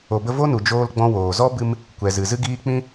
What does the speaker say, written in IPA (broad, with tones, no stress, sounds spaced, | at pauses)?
o˨ b ə˧ v o˦ n u˨ d͡ʒ oː˧ l ɡ͡b ɔ̃˧ w oː˨ z ɔ˦ b ɨ˧ m | kʷ ɛ˨ z ɨ˨ z ɨ˦ ɡ iː˦ k͡p ĩ˧